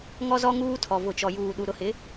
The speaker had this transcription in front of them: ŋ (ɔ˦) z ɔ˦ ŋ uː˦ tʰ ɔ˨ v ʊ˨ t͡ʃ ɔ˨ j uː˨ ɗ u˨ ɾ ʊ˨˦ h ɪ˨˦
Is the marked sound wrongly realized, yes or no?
no